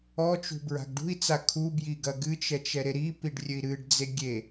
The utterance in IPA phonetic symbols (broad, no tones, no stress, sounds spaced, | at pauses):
ɔ t͡ʃ ṳ b ɹ a̤ ɡ ɖ ṳ i̯ t͡s a kʰ u b j i ɡ ɐ ɡ ɨ t͡ʃ ɛ t͡ʃ ɛ ɾ e ɾ i p i ɖ rʲ ɘ i̯ ɾ ɨ ɖ d͡z e ɡʲ e